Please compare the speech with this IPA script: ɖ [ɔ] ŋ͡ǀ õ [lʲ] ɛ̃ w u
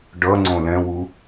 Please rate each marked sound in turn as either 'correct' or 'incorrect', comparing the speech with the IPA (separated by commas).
incorrect, incorrect